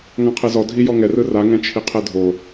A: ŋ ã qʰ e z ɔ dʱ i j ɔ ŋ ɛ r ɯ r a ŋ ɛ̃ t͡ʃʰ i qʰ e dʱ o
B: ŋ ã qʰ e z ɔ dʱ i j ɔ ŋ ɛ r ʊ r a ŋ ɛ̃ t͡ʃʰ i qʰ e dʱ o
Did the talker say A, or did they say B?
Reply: A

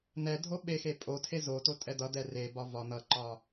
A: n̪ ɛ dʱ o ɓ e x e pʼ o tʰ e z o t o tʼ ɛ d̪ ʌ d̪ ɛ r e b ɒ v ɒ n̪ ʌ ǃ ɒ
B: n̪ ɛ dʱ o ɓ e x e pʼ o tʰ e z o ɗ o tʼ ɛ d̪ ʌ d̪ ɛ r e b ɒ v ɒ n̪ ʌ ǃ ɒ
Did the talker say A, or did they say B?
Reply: A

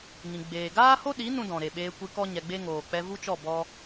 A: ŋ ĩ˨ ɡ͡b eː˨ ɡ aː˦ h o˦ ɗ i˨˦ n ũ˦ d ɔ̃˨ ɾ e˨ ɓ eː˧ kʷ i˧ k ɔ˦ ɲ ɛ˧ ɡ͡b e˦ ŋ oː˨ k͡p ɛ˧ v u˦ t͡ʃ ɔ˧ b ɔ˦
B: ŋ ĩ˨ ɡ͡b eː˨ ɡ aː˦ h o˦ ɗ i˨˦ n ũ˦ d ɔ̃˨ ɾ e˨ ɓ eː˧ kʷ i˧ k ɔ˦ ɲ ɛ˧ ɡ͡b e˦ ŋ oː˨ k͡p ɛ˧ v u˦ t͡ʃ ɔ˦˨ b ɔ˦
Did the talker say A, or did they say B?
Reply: B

